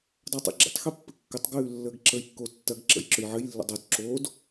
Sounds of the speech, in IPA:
dˤ a tˤ ɛ̰ ɡ͡ǁ ə̰ tˤ x ɛ pː ɘ kː ɘ tˤ ɡ ʉː lː əː ɡ ǁ ə j kː o tː ɐ ɡ ǁ ə̰ j ǁ ɵ j ʕ ɘ j lː ə̰ dˤ o d ǁ oː d

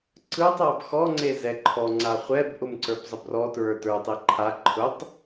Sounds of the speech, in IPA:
ǀ ɯ tˤ a b x ɔ ŋ͡ǀ e z ɛ ǃʰ ɔ ŋ͡ǀ a χʷ ɛ b ʔ ʊ m ǀ ə˞ b zˤ ə b r ɔ t ɹ ə˞ t ə˞ tˤ e ǃʰ a ǃʰ ʊ tˤ

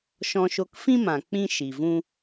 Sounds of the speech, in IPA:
ʃ ɔ̃˧ ʃ o˧ k f ĩ˦ m ã˨ k͡p ĩ˦ ʃ i˨ v ũ˦

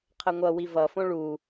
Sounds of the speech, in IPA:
qʰ ə ŋʷ ʌ w i v ʌ f õ ɭ u

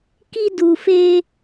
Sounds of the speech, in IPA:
k i˦ d u˧ f e˦

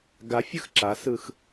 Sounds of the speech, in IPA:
ɡ a fʲ ɯ x ǁ a s ɯ x

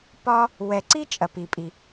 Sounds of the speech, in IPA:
p ɒ˥ | w ɛ˩ ǀ i˥ t͡ʃʼ ɐ˩ p i˩ pʼ i˩

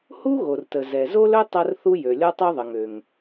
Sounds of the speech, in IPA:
h u˥ ɣ o˩ r t ə˩ z ɛ˩ z o˥ l ɵ˥ tˤ ɐ˥ r θ u˥ j ø˩ lʲ ɔ˥ tˤ ø˥ ðˤ ə˩ ŋ ø˩ ŋ

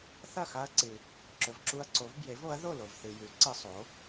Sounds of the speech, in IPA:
θ ɐ˥˨ x a˦ ɐ̯ ǀ ɨ˨ | ǁ ɵ˨ v ǁ u˦ ɐ̯ ǀ o˨˥ v b j e˨˥ v o˨˥ ɐ̯ ð o˥˨ l o˨ v θ ɨ˨ j ʉ˨˥ ǀ ɨ˦ sˤ o˨˥

